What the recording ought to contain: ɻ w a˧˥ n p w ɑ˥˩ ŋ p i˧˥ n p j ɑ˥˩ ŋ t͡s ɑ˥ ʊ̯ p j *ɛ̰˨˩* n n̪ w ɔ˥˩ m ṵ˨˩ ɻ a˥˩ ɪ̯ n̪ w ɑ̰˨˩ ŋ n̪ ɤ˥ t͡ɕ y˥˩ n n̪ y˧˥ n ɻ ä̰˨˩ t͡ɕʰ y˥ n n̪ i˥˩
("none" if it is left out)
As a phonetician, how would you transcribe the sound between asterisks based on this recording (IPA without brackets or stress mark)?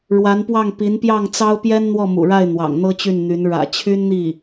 ɛ˥